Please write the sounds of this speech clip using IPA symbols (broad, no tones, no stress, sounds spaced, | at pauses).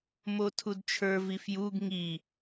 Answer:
m o tʰ u d t͡ʃʰ ə˞ v i f j u ɡ ŋ i